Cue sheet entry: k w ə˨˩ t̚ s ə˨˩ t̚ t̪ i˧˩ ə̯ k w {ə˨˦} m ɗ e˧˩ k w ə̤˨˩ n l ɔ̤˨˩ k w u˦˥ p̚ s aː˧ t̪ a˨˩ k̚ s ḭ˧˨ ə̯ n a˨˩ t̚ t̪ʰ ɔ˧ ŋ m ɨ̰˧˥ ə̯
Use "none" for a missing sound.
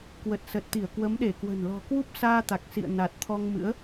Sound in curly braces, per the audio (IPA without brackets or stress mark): ə˨˦